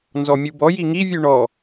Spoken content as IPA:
n z ɔ mʲ u b ɔ j i ŋ i vʲ ʉ ɳ ɔ

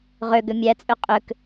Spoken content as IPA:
ʁ ø ɡ ʏ mʲ æ t͡sʼ ø qʼ ʏ k

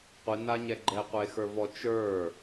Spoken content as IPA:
qʷ i n a ɲ ɛ ɡ͡ǃ ɛ qʷ e x ə˞ v ɔ t͡ʃ ə˞

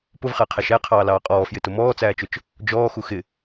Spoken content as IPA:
p ʊ v χ æ qʰ æ ʃ æ qʰ ɑː l ɑː qʼ ɔː f j ɪ t ʊ m ɔː t͡s æː t͡ʃ ʊ t͡ʃ | d͡ʒ ɔː x u x ɪ

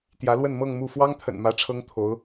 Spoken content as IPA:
t̪ j ä˧˥ l w ə˥˧ n m ɤ˥˧ ŋ m u˥˩ f w ɑ˥ ŋ t̪ʰ ə̰˨˩ n m ä˧˥ ʈ͡ʂʰ ɤ˥ ŋ t̪ʰ o˧˥ ʊ̯

